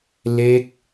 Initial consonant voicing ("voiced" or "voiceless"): voiced